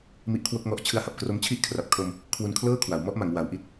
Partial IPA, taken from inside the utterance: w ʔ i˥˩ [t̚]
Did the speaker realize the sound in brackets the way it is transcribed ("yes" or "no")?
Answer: yes